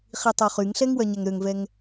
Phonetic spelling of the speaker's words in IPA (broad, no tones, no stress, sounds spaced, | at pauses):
χ i tˤ o χ y ŋ ɬ ɛ ŋ w œ ɲ ɛ ŋ ɾ ø ŋ v ɛ ŋ